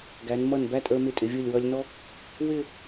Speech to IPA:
ɡ æ˩˧ n m ʌ˧˩ n b æ˥˧ tʼ ə˞˧ m ɪ˧˩ tʼ ɪ˩˧ vʲ u˧˩ lʲ w ʌ˧ lʲ n ɔ˥ | w ɪ˥˧

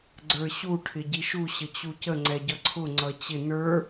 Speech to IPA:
ɡ͡ǀ ə˞ ɕ u ʈʰ ɪ ɟ i ʃ u ɕ ə t͡ɕ u c ə ŋ͡ǀ ɛ ɟ ʌ ǀʰ ʊ ŋ͡ǀ ʌ t͡ɕ ɪ n ə˞

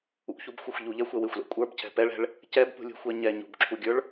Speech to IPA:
ṵ ç u b xʷ ɛ xʷ ʎ u ʎ ɛ xʷ ɛ w ɪ xʷ l ɛ̰ kʷʼ ə˞ b cʰ ɛ̤ p ɛ ɭ ɛ̤ ɭ | c ɛ b p ṳ lʲ ṳ xʷ ɛ ɲ ɛ ɲ ṳ b ǁʰ u ɡʲ ə˞ ɭ

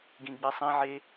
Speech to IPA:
ɡ ĩ ɡ͡b i sˤ ĩ ʕ e

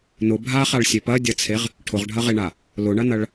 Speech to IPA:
n ʊ bʱ a χ a ɭ sʲ e p ɐ dʲ ɐ t͡sʰ e ʁ | ʈʰ ʊ ʁ ɖʱ ɐ ʁ e ɳ a | l ʊ ɳ ɐ n ɐ ɭ

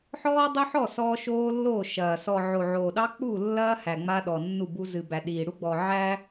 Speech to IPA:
ħ ɔː˦ dˤ o˦ ħ ɔ˦˨ s ɔː˦ ʃ oː˦ lː oː˦˨ ʃ ɐː˨ s ɔ˨ ʕ o˨ ʕ oː˨ ɗ ɑ˦ k͡p u˦˨ lː ɐː˦ h æ˨ ŋ͡m a˦ ɗ ɔ˨ nː u˦˨ b u˦ z ɨ˨ b æ˨ ɗ iː˨ ɽ u˦ ɡ͡b ɔ˨ ʕ æ˦

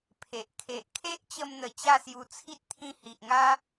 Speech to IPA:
pʰ e˨ ʔ kʰ e˨ ʔ kʰ e˦ ʔ t͡ɕ ə˧ m n̪ ə˨˩ t͡ɕ a˥˧ s j u˧ t͡sʰ i˦ t̚ t̪ʰ ĩ˧ h i˨ ʔ ŋ a˦

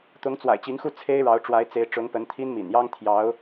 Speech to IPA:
t̪ ʊ˧˥ ŋ t͡s w a̰˨˩ ɪ̯ t͡ɕ i˧˥ ŋ x u˥˩ t͡sʰ e˥ ɪ̯ ɻ ɑ˧˥ ʊ̯ ʈ͡ʂ w a˧˥ ɪ̯ t͡s e˧˥ ɪ̯ ʈ͡ʂ ʊ˧˥ ŋ p ə˧˥ n t̪ʰ i˥ n m ḭ˨˩ n j ɑ˥ ŋ t̪ʰ j ɑ˧˥ ʊ̯

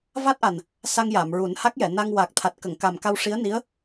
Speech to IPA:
v a˦˥ t̚ ʔ a˨˩ n | s a˧ ŋ j a˨˩˨ m ɹ u˨˩˦ n h a˦˥ k̚ j ɛ˨˩˨ n a˧ ŋ w a˨˩ k̚ t̪ʰ a˨˩ t̚ k ə˨˩˨ ŋ k a˨˩ m k a˧ w ʂ i˧˥ ə̯ n i˧˥ ə̯

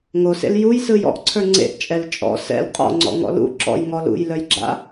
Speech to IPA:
ŋ o s ḛ l j u j s ɯ j ɔ̰ ʔ ǀʰ ə˞ ŋ͡ǀ ḛ ʔ t͡ʃʼ ɛ l t͡ʃʼ ɔ̰ s ɛ̰ l qʼ ɔ̰ ŋ͡ǀ ɔ̰ ŋ ɔ̰ l ṵ ǁ ɔ̰ j ŋ ɔ l ṵ j l œ j ɡ͡ǁ a̰

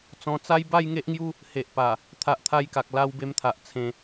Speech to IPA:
t͡s ɔ̃˧ t͡s a˦ j b a˥˧ j ŋ e˦ ʔ ŋ j u˦ | h e˨ ʔ p a˨˩ | t̪ʰ a˨ ʔ t̪ʰ a˧ j k a˨ k̚ l a˧ w b e˧ m t̪ʰ a˨ ʔ t͡sʰ ẽ˧

